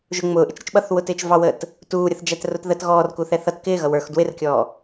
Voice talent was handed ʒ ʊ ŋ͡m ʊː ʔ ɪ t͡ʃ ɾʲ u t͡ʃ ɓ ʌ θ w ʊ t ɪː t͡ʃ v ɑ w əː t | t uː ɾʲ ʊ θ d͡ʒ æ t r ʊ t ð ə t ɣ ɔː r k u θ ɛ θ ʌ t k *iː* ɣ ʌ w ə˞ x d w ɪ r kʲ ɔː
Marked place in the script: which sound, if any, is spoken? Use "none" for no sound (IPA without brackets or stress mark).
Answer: ɪː